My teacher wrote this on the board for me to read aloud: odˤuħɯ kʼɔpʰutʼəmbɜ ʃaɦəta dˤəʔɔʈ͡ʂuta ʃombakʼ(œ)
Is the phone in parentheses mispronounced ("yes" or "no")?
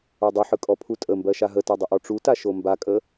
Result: yes